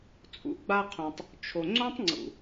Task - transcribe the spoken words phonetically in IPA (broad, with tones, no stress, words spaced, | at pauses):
t͡sʼṵ˨˦ɡ͡ba˧qʰõ˨tˤ | t͡ʃʰo˨ŋ͡ǀõ˦tˤŋ͡ǀṵ˨